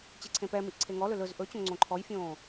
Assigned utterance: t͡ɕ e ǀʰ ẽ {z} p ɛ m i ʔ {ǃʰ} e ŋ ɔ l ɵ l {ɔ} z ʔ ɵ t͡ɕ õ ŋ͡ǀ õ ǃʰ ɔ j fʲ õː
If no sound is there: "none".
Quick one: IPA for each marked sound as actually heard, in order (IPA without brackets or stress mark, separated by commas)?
none, ǀʰ, ɵ